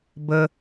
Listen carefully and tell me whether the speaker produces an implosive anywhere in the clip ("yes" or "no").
no